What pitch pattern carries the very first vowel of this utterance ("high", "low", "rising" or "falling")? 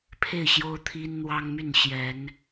falling